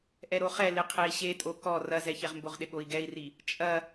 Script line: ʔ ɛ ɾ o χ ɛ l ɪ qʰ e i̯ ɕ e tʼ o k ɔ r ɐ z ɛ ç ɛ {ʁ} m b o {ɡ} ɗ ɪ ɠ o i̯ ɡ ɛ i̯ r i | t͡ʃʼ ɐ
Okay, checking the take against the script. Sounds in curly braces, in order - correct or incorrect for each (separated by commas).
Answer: correct, incorrect